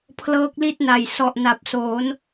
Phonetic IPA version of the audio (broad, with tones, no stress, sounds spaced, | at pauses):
pʰ l ɤː˦˥ k̚ l i˥˩ t̚ n a˨˩ j s ɔ˨˩ ʔ n a˨˩ p̚ s oː˩˦ n